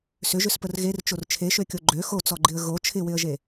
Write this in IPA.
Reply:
s ʏ ʒ ʏ s p ə r ɣ e r t͡ʃ o r t͡ʃʰ e ʃ ø kʲ o ɡ͡ǃ ø x o t͡s ɔ ɡ͡ǃ ɪ ə̯ ɣ o t͡ʃʰ ɪ w ɪ ə̯ ʒ e

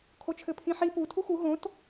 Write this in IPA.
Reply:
kʰ o t͡ʃʰ ɘ pʰ ĩ ħ i p u tʰ u x u ɦ õ t

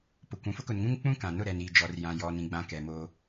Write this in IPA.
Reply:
p ʊ˨ kʷ ũ˨ f ʊ˦ k ʊ˨ n ŋ ũ˦ ŋ k͡p ũ˦ k ã˨ n ʊ˦˨ ɾ ɛ˨ n iː˨ d͡ʒ ɔ˨ r j ã˨ j ɔ˨ n ĩ˨ ɡ͡b ã˨ k ɛ˨ m oː˦

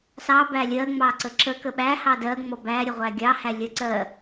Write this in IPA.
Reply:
s ɑ b æ lʲ ɜ ŋ͡m ɑ ǀ ə ǁ ə k ə ɓ æ h ɑ d ɜ ŋ͡m ɔ b æ ɾʲ ə ʁʷ æ ɡʲ ɑ h æ lʲ ɜ ǀ ɜ

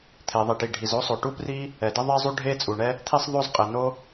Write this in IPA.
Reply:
t̪ʰ e˩ ðˤ i˩ ʈ i˩ ɖʱ i˩ z o˥ sˤ o˩ ʈ u˥ p r i˥ | ɛ˩ d ə˥ ðˤ ɛ˥ zˤ u˥ ɖʱ e˥ t͡sʼ u˩ ɳ ɛ˥ | t̪ʰ i˥ sˤ ðˤ o˥ z qʼ e˩ n o˥

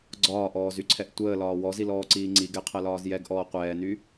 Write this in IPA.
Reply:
ɡ͡ǀ ɒː ʔ ɔː z y ǀʰ ɛ ʔ tʷ əː l ɒː w ɔ z i l ɔː ǀ iː ŋ͡ǀ i ɡ ɛ qʰ ɜ l ɒː z j ɛ ɡ ʔ ɔː qʷ ɛː n y

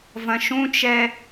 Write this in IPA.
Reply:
v ɐ̃ ʃ ũ t͡ʃ ɛ

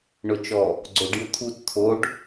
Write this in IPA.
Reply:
ɳ ʊ t͡ʃ ɔ | ɡ͡ǀ o ɖ j ʊ t̪ʰ u t t̪ʰ o ɖ

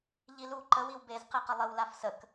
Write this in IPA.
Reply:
ʎ i l u ǃ ə w i w b e z q e q ə lˠ ə w l a f s ə k

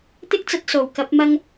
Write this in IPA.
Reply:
t̪ ɪ˥ k̚ t͡s ɐ˧ t̚ s o˨˩ w k ɐ˨˥ p̚ m ɐ˧ ŋ

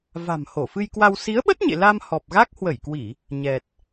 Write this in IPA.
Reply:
v a̤˨˩ m h o˧˩ f ɨ˧ j k w a˧ w s i˨˦ ə̯ ɓ ə˦˥ t̚ ɲ ḛ˧˨ l a˧ m h ɔ˨˩ p̚ ɣ a˦˥ k̚ h w ə˧˩ j k w i˧˩˨ | ɲ ɛ˨˩ t̚

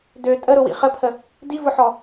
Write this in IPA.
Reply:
d ø tʼ ə ɾ ʊ w ḭ χ ə pʰ ə | d i v ʊ ħ ɔ

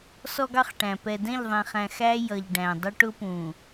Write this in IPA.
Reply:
s ɔ˦ ɡ ɑ˦ χ ʈ æ̃˨ p ɛ˨ d ɛ̃˦˨ ʎ ðˤ ɛ̃˨ χ æ̃˨ x æ˦ j ʌ˨ ʎ ɖ æ̃˨ dˤ ʊ˦ ʈ ʊ˦ p ũ˨

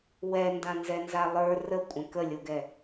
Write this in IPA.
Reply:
w ɛ n d ã n z ɛ n z a lˠ ə˞ r ə kʷʼ ə̃ k ə lʲ o ɡ ɛ

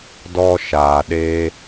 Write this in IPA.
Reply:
d ɔ˧ ʃ aː˨ ɗ eː˧

